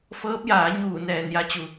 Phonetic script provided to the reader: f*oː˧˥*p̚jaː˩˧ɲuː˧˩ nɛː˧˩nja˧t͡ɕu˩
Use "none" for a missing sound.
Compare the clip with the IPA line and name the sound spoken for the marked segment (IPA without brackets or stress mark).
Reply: ɤː˧˥